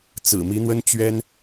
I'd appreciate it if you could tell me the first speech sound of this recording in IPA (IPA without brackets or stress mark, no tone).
t͡s